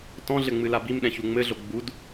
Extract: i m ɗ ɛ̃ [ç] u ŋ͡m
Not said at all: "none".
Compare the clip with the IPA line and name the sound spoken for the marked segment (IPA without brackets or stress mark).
ç